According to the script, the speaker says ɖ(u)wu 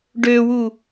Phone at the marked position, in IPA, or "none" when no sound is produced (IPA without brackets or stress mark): ø